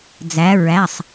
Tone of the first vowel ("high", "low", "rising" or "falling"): rising